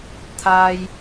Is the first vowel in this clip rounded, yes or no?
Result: no